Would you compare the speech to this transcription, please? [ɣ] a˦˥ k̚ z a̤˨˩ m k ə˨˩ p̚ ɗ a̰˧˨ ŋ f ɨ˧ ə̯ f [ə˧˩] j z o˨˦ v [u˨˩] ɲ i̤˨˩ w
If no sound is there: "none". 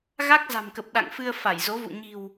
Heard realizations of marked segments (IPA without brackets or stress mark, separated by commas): ɣ, a˧˩, ṵ˧˨